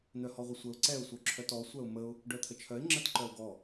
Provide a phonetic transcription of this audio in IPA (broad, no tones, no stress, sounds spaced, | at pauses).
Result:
n̪ œ h ɔ ʁʷ ə sʷ ə ʊ̯ ǀ ɛ ʊ̯ sʷ œ ǁʰ œ t ɔ sʷ œ ʊ̯ m ə ʊ̯ | ɖ œ t̪ʰ ə t͡ʃʰ œ ɪ̯ ŋ͡ǁ ə t ǃ œ ʊ̯ ɡ ɔ